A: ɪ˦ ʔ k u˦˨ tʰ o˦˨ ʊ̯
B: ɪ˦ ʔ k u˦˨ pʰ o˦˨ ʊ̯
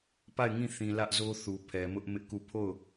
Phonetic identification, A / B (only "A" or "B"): B